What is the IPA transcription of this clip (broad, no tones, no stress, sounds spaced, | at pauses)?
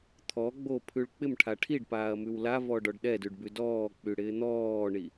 t̪ʰ ɔ ɡ͡b o pʰ ʉ ɭ k͡p ɪ m ʈʰ a ʈʰ i ɖ p aː ɐ̯ m ʉ w l a v ɔ ɖ ɔ ɖ ɗ ɛ d ʉ ɖ b ʉ d ɔː k͡p y ɽ ɪː n̪ ɔː ɳ i